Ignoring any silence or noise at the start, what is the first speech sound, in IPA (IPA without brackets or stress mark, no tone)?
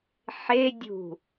ħ